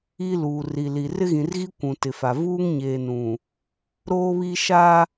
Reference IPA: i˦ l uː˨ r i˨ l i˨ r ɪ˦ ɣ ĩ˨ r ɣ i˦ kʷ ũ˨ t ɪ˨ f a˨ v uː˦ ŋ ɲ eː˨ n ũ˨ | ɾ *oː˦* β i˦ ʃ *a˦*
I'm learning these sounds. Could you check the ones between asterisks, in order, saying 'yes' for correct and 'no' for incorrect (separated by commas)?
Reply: yes, yes